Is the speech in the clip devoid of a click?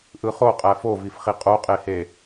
yes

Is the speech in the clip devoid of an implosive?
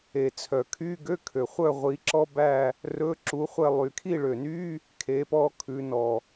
yes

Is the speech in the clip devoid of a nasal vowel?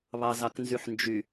yes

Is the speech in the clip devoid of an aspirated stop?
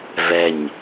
yes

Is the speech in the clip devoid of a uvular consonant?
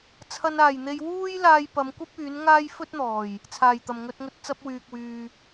yes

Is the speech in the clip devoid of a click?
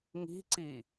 no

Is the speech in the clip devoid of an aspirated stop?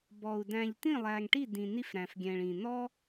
yes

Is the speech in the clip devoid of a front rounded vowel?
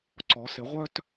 no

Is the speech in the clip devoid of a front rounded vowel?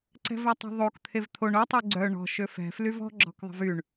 no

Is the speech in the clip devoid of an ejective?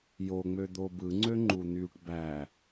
yes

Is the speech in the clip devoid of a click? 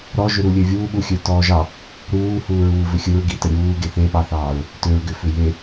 yes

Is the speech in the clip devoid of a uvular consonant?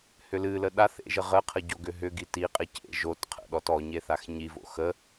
no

